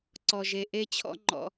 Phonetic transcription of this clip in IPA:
ǀ ɔ˧ ʒ e˧ ʔ e˥ t͡ɕʰ ɔ̰˥ ŋ͡ǃ ɔ̰˧

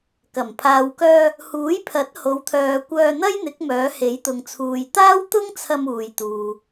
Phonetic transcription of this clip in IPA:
k ɐ˨˩ m pʰ aː˨ w k œː˧ | h uː˨˥ j pʰ ɐ˨˥ t̚ h o˨˧ w t̪ʰ œː˧ kʷ œː˧ n̪ ɐ˥ j n̪ ɪ˨˥ k̚ m œː˨˥ h e˨˥ j t̪ ʊ˨ ŋ t͡sʰ uː˨ j t̪ aː˥ w t̪ ʊ˥ ŋ t͡sʰ ɐ˧ m uː˨ j t̪ uː˨

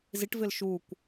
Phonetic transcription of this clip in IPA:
z i ʈ v ɪ l ʃ u kʷ

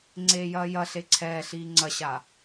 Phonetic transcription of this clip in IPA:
ŋ͡ǀ eː j ɐː j ɐ ɬ e ǀʰ ɛː ɬ iː ŋ͡ǀ ɐ ɕ a

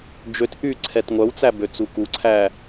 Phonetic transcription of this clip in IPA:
d͡ʒ ø t ʔ y ǀʰ ɛ t ŋʷ œ w t͡s æ b ø t͡s u k u ǀʰ æ

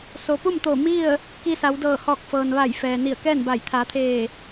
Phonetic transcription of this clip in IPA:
s o˩ p u˥˨ m t̪ oː˧˩ m i˥˨ ə̯ | k i˧ s a˩˧ w d ɤː˧˩ h ɔː˧˩ k̚ f ɤː˩ n ʋ a˧˩ j f ɛː˩ n i˧˩ ə̯ k ɛː˥˨ n b a˧˩ j t̪ʰ a˩˧ t̪ʰ eː˧˩

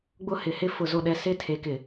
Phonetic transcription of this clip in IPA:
ɡ͡b ʊ˦ h ɪ˨ h ɪ˦ f ʊ˨ z o˨ ɗ ɛ˨ s ɪ˦ tʰ e˨ k ɪ˨

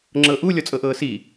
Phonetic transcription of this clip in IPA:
ŋ͡ǁ ɤ ʔ u lʲ ɔ t͡sʼ ɤ ʔ ɤː s i

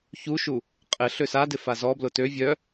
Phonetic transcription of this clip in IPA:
ç u ʃ u | qʼ ɪ ɬ ø s a d ɪ f a z ɔ b l ʊ t ø vʲ œ

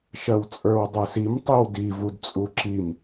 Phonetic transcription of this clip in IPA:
ʃ ɜ w t͡sʼ ə˞ w dˤ ə˞ s i m tˤ i w d i v u d t͡sʼ u ǁ i m

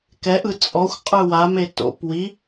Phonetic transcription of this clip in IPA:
k ɛ ʔ ɯ t͡sʼ ɔ xʷ qʼ ɯ w a m e t o̰ p w i

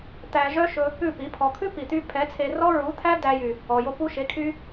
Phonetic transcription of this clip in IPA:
t̪ æ˧ ʒ œ˦ ʃ ɵ˧ | ʉ˦˨ p i˨˦ pʰ ɔ˧ kʰ ʉ˦ p i˨ t̪ y˧ pʰ ɛ˨˦ t͡sʰ e˧ r ɔ˦ ɹ u˨˦ t̪ʰ æ˦ d æ˧ j y˨ | ɔ˨ j o˧ p u˦ ʃ e˨˦ kʰ y˦

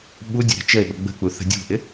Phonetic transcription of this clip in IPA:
ɓ u dʲ ə̤ ɾ ə̤ t͡ʃ ə e̯ ɓ ə ɡ͡b ə̤ k͡p u θ ə̤ dʲ ṳ ʔ ɪ

